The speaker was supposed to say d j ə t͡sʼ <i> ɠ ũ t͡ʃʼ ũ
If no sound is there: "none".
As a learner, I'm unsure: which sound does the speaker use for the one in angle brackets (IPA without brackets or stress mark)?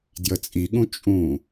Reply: i